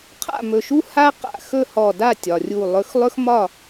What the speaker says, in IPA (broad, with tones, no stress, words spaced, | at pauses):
qʰa̰˥˨mɵ˧˩ʃu˥ ha˥qa̰˧˩ xɵ˥˨hɔ˧˩da˥˨ tʲɒ˩rʲu˧˩ lˠɵ˨˥xlˠɵ˥x mɒ˥˨